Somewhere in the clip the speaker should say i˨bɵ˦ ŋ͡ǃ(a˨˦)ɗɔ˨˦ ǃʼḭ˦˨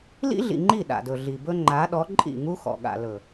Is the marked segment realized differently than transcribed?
no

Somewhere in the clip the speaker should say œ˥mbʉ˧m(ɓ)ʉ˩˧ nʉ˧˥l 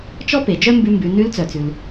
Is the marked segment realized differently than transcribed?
yes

